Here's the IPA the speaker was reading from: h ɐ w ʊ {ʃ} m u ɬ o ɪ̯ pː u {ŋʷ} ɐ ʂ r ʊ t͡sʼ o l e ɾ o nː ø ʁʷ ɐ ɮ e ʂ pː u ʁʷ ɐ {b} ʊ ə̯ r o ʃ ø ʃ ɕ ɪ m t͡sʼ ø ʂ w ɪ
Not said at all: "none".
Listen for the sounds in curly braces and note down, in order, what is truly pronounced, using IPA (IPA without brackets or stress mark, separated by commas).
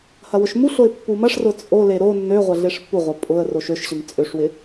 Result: ʃ, m, pʼ